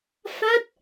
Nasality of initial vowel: oral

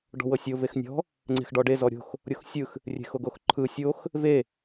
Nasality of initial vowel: oral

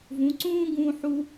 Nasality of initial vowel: nasal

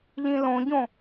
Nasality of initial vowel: nasal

